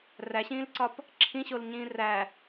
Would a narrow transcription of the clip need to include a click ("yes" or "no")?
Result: yes